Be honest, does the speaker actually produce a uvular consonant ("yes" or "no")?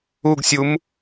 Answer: no